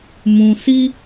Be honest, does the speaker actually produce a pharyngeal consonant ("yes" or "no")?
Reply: no